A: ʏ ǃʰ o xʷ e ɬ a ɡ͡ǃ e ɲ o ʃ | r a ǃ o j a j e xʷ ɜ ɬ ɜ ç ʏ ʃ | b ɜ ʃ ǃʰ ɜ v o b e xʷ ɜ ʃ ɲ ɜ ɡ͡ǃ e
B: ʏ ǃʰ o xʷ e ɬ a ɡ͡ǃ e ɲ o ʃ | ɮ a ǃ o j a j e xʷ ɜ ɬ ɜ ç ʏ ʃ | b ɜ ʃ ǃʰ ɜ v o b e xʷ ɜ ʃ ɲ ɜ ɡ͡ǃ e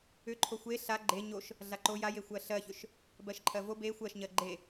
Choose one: B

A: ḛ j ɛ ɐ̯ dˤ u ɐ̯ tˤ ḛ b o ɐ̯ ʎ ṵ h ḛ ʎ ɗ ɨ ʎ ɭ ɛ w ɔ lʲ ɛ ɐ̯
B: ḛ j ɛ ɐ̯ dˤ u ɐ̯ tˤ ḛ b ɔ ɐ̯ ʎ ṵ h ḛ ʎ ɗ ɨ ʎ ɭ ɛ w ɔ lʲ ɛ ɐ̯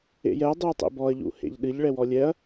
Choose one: B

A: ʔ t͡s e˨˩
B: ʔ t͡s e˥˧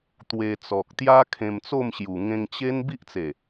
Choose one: A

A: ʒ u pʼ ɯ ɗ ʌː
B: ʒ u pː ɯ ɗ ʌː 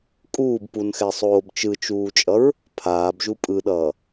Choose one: A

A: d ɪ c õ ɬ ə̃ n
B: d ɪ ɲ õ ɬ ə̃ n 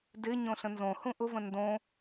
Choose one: B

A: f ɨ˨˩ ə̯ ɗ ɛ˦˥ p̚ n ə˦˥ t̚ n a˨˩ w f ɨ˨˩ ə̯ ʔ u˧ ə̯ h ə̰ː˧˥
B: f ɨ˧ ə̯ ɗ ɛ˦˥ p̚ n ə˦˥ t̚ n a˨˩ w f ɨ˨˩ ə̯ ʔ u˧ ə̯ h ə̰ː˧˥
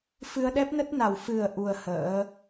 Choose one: B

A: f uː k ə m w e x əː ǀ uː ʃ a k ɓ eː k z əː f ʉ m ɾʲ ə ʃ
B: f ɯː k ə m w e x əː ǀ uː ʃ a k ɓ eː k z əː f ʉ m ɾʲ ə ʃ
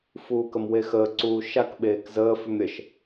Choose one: A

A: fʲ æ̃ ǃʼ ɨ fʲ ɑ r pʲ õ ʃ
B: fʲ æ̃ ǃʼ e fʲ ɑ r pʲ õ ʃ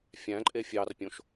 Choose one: B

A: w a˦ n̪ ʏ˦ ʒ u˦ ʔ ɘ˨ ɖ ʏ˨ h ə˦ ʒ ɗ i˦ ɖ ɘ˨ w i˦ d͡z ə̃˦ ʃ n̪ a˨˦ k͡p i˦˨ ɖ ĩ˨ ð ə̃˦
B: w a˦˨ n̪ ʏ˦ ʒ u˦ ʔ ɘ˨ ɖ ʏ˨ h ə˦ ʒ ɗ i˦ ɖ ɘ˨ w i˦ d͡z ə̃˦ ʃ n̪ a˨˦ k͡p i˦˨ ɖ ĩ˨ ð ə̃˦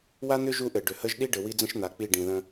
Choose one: A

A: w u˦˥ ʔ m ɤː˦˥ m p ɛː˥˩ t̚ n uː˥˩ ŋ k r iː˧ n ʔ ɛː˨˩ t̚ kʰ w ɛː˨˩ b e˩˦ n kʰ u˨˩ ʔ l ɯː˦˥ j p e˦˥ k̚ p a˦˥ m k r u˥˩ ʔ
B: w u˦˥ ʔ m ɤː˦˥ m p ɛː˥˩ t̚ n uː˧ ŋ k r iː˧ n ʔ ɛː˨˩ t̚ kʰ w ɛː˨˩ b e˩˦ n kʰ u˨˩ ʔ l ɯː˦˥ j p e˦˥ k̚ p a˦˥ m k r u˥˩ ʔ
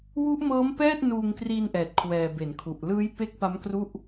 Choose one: B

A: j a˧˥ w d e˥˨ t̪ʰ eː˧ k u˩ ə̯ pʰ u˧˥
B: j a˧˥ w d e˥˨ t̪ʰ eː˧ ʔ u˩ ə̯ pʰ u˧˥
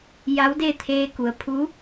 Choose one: A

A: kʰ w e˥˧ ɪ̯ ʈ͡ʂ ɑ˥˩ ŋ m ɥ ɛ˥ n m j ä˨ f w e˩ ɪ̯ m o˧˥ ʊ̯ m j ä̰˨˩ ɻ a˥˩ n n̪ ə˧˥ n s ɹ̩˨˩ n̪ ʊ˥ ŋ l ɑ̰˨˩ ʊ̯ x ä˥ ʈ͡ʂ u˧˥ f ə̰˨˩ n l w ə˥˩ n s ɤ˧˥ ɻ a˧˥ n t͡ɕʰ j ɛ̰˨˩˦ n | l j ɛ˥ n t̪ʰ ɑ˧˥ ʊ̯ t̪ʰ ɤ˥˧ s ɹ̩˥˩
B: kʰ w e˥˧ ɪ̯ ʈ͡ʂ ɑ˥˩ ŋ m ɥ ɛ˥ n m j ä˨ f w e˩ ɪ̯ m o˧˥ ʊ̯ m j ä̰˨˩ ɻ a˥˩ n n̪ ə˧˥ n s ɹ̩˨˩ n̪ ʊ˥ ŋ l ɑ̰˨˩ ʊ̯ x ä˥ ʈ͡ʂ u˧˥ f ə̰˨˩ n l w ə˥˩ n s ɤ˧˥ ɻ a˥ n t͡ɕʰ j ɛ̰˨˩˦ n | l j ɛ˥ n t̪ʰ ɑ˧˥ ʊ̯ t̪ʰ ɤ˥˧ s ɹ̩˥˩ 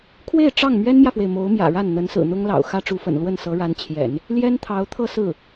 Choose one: A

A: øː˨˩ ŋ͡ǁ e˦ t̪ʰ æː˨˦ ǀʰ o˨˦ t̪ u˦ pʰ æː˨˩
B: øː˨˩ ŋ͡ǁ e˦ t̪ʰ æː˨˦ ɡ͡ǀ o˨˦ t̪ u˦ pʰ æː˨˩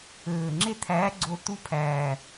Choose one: B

